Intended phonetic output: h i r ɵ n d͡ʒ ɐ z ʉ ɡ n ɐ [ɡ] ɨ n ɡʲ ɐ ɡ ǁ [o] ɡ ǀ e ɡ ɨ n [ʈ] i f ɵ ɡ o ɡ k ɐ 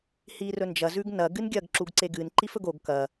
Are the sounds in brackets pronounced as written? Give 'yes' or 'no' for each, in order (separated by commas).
yes, no, no